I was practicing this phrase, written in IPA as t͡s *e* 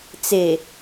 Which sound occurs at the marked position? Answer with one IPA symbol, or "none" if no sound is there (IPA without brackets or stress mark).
e